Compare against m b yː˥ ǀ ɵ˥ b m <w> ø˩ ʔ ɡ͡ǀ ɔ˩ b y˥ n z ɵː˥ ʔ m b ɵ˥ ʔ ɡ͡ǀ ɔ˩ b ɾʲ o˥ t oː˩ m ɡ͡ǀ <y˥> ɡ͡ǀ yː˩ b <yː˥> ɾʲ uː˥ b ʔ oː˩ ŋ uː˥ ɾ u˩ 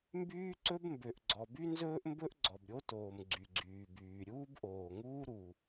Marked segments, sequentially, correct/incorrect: incorrect, incorrect, incorrect

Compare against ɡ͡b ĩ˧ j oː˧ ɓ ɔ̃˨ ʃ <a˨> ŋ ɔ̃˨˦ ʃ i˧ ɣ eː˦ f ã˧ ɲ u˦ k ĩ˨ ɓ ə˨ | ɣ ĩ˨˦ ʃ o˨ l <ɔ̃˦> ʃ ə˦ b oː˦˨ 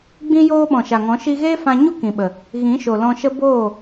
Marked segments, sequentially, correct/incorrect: correct, incorrect

